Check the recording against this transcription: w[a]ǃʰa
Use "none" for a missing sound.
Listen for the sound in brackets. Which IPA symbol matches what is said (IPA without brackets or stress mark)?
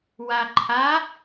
a